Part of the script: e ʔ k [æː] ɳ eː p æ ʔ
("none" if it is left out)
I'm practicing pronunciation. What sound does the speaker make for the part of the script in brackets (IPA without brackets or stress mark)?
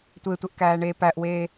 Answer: æː